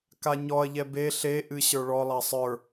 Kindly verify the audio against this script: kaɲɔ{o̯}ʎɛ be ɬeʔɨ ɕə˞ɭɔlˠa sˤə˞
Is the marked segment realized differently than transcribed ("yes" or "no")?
yes